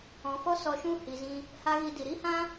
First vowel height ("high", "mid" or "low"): mid